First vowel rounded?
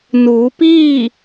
yes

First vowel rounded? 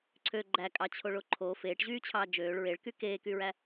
yes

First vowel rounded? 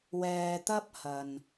no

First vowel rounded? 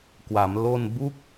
no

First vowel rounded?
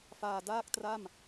no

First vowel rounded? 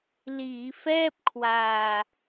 no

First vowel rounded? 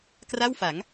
no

